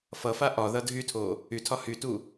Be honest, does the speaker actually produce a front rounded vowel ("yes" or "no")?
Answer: yes